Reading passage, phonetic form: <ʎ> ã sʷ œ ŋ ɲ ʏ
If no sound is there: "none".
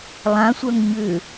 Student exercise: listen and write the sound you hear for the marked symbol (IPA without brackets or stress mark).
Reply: lˠ